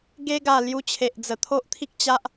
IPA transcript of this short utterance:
ɡe˧ɡa˨˩ lju˧t͡ɕʰe˨ʔd͡zə˨˩ t̪ʰo˦ʔt̪ʰi˦k̚t͡ɕa˦ʔ

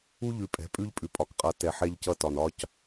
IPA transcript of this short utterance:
u˦ ʎʉ˨pʼɛ̤˨˦pʼʉ˦ʎ pʼʉ˨pʼɒ˨kqʼʌ˨ tɛ˨ħɛ˦ʎcʌ˦ tɒ˨nɒ˦c

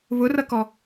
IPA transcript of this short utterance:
βʊrʌkɔ

